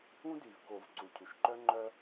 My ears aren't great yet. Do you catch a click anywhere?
yes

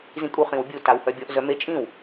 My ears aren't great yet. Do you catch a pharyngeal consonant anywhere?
no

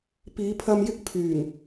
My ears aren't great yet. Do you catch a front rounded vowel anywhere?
yes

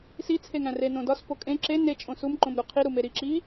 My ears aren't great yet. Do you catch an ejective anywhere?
yes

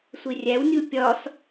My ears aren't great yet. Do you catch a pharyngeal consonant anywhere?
no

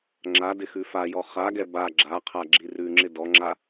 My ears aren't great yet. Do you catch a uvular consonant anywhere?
yes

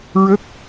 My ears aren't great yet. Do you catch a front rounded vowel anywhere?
no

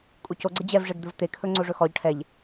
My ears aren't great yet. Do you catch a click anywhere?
yes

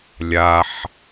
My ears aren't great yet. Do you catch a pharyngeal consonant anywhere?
yes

